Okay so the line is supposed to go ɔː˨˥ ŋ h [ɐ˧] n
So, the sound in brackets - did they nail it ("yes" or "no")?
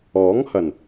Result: no